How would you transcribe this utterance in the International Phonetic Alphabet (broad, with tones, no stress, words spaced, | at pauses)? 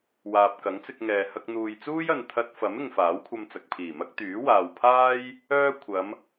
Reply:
waː˨p̚ kɐ˨˥ŋt͡sɪ˧k̚ŋɛː˨ hɐ˧k̚n̪uː˨jt͡suː˥jɐ˨n t̪ʰɐ˧t̚fɐ˨˥m ɪ˨ŋfaː˨˥wkʷʰɐ˧m t͡sɐ˨k̚pʰiː˨˩mɐ˥k̚ t̪yː˨˥waː˨wpʰaː˥j | œː˥ kʷʰɐ˨˧m